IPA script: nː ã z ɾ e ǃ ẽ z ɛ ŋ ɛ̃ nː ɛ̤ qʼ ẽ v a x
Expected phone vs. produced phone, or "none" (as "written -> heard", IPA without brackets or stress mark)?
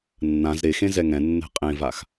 ǃ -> x